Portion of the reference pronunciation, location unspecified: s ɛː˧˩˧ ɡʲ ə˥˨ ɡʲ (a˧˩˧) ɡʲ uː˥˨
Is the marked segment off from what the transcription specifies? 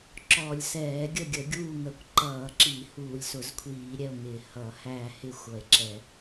yes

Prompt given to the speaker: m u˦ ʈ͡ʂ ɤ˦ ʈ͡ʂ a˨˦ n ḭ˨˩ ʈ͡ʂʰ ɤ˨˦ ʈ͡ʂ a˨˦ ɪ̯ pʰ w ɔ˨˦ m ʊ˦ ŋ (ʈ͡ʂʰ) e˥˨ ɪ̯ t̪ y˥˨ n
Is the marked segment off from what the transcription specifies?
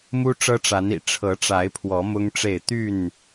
yes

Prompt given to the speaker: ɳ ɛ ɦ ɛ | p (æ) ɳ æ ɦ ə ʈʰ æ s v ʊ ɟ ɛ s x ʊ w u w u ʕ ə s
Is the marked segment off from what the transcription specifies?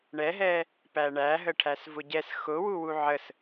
no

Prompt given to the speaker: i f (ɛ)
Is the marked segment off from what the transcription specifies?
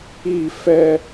no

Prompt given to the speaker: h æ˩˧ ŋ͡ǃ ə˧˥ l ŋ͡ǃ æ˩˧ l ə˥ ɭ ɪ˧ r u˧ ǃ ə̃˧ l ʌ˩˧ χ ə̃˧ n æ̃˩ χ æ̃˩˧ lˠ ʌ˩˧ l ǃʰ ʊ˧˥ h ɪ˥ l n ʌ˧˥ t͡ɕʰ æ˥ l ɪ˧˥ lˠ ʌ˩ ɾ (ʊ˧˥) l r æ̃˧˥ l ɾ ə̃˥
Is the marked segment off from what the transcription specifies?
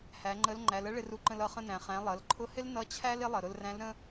yes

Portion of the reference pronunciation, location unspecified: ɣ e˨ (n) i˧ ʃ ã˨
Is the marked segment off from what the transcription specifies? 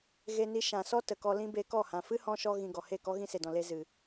no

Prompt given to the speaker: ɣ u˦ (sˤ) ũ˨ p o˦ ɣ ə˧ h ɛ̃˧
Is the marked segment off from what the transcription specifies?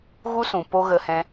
yes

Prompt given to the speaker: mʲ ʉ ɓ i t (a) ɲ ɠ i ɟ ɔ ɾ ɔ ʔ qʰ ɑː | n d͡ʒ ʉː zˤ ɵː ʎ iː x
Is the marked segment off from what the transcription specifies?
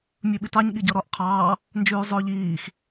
yes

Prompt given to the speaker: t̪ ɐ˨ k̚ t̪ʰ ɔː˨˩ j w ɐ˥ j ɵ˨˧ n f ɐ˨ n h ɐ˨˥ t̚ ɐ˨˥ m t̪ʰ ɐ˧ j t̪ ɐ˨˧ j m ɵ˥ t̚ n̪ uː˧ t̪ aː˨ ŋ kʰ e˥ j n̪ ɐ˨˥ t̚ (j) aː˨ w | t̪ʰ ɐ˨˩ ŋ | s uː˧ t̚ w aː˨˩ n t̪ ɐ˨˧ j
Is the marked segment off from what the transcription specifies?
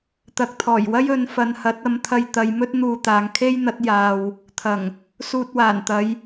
no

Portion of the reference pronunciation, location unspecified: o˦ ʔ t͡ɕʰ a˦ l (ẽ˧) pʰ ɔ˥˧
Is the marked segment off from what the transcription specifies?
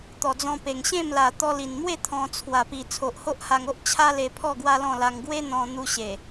yes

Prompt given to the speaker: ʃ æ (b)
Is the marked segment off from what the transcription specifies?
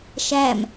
yes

